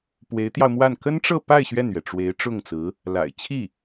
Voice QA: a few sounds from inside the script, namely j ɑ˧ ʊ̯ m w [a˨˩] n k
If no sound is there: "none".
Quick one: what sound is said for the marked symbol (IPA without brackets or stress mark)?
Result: a˥˩